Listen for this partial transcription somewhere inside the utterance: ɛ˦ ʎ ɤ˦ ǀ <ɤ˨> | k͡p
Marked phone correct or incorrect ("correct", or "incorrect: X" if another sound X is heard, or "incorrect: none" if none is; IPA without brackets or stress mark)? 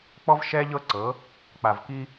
incorrect: ɤ˨˦